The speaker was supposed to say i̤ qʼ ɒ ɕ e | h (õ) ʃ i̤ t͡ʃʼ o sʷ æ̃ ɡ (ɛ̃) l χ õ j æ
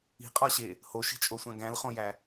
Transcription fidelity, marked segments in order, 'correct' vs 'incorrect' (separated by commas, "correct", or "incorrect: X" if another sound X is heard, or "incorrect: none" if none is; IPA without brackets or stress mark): incorrect: o, incorrect: æ̃